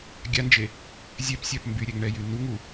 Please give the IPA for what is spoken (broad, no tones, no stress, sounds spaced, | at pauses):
ɡʲ a n d͡ʒ e | zʲ ɛ p sʲ a p m b y ɾʲ ɛ ŋ ɳ ɛ j y n u ŋ u